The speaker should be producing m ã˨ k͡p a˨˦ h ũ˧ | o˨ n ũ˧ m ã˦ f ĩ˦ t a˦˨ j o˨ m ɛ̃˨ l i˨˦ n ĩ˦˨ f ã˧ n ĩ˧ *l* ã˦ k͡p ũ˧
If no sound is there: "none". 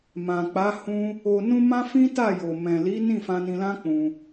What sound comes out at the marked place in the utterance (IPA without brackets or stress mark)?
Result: l